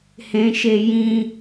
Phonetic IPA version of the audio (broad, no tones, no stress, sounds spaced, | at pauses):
h ẽ ʃ e j ĩ